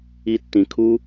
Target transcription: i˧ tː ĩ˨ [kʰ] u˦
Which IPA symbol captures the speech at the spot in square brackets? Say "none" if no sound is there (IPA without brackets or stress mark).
kʰ